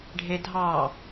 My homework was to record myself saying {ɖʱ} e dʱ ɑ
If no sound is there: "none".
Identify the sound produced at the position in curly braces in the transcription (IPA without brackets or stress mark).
ɖʱ